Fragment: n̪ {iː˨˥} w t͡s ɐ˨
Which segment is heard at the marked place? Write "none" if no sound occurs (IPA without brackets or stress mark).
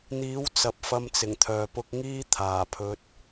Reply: iː˨˥